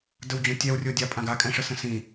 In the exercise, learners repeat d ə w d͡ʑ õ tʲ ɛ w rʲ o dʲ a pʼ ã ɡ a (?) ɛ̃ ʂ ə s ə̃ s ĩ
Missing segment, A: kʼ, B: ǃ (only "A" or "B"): A